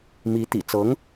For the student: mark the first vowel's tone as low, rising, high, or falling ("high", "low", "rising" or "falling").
rising